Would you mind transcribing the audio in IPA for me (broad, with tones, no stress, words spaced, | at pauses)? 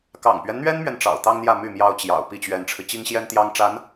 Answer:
kɑ̰˨˩ŋpɥɛ˦nn̪ɥɛ˥nmɥɛ˨n ʈ͡ʂɑ̰˨˩ʊ̯t̪ɑ˥ŋn̪jä˥˧ my˥˩mjɑ˥ʊ̯t͡ɕjɑ̰˨˩ʊ̯ pi˥˩t͡ɕɥɛ˧˥nʈ͡ʂʰɻ̩˧ t͡ɕi˥ŋɕjɛ˥nt̪jɑ˥ŋʈ͡ʂa˧˥n